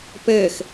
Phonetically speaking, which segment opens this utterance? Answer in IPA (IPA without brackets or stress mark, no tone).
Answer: p